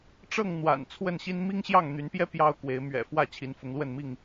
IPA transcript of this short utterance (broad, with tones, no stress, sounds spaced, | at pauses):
ʈ͡ʂ ɤ˥˨ ŋ n̪ w a̰˨˩ n t͡sʰ w ə˥˨ n ɕ i˦ n m i˦ ŋ ɕ j ɑ˥˨ ŋ n̪ y˨˦ n p j ɛ˦ p j ɑ˦ ʊ̯ k w e˨˦ ɪ̯ m ɥ ɛ̰˨˩ f w ä˥˨ t͡ɕʰ i˨˦ n f ʊ˨˦ ŋ l w ə˥˨ n m i˥˨ ŋ